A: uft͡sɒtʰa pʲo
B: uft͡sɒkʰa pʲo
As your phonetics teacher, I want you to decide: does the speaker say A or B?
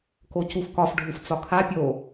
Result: B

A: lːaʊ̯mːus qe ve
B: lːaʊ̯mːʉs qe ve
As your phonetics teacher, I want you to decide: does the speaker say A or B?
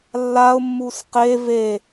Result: A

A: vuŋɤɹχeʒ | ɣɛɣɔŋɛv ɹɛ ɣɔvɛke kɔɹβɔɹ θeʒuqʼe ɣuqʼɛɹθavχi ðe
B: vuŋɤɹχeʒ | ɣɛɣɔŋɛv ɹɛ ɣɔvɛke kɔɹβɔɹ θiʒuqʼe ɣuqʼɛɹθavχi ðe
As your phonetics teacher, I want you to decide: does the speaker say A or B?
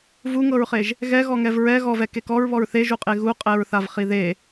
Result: A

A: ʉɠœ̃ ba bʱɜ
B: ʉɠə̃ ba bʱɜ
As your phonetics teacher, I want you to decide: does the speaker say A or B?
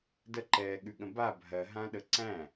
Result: B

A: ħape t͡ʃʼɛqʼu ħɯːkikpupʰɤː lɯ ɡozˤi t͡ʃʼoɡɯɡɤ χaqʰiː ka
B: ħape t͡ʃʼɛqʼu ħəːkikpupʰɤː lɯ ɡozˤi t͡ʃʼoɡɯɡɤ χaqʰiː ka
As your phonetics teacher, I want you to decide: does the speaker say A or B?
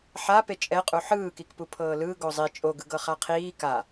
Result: A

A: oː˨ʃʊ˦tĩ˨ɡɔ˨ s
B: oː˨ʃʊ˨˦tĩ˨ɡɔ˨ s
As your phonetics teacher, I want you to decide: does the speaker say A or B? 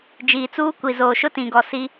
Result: A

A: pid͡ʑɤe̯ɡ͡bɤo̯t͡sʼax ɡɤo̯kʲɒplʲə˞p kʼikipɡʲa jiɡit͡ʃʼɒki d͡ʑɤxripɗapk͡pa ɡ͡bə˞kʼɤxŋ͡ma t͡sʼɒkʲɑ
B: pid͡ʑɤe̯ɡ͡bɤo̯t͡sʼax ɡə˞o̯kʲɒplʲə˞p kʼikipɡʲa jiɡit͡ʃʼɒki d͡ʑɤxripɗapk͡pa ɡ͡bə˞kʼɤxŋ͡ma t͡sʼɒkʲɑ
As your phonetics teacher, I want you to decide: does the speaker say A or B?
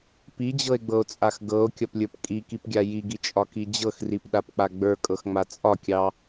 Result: A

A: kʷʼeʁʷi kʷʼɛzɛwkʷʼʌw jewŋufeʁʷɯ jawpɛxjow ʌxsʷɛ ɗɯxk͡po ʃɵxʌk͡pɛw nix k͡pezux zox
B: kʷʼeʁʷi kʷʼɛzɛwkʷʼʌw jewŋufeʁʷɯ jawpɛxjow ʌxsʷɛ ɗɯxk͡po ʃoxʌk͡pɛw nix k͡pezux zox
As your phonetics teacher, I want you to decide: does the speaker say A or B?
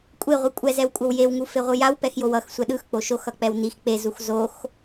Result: B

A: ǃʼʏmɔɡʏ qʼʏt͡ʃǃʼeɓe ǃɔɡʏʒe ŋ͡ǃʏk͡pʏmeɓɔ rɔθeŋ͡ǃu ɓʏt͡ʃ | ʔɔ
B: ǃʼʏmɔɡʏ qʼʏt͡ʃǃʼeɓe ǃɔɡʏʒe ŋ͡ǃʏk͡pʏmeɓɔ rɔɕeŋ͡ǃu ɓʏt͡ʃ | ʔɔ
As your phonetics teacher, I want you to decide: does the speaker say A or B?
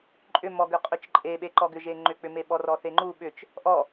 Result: A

